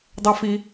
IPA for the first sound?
dˤ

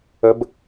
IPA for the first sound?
ə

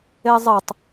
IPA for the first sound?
e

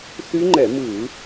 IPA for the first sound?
θ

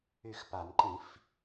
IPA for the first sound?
y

